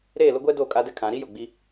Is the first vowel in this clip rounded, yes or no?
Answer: no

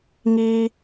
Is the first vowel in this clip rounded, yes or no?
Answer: no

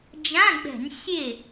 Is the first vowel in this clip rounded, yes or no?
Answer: no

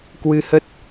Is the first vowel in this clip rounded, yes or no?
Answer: no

